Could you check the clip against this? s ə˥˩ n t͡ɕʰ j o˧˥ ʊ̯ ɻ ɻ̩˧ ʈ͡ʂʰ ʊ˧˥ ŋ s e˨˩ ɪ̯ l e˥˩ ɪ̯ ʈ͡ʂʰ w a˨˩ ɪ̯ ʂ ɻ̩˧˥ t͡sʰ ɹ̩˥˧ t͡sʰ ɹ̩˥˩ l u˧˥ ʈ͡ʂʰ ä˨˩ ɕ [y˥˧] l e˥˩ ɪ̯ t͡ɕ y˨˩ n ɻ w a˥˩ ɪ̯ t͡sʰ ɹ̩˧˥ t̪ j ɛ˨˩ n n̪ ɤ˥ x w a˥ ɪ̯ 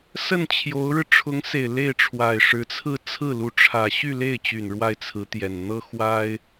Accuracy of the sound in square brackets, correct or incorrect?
correct